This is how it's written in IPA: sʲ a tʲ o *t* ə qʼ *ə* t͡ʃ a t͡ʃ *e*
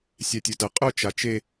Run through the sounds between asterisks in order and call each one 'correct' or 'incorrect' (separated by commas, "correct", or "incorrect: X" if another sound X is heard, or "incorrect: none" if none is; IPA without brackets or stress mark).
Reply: correct, incorrect: ʊ, correct